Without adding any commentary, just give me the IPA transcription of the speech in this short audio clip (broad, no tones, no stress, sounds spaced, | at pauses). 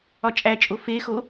ɒ t͡ʃʼ æ t͡ʃʼ o f e x o